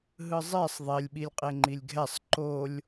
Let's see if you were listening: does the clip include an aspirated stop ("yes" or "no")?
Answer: no